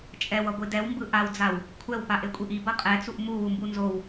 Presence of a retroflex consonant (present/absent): absent